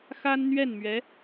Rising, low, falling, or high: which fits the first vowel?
high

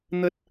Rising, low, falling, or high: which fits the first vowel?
high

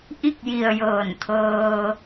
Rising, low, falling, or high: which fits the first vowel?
falling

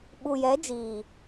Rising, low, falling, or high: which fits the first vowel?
low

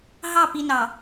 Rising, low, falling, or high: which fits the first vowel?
falling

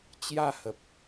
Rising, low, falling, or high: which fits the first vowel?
falling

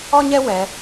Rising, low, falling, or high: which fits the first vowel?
high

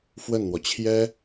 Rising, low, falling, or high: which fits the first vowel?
falling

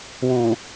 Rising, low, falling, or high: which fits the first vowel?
low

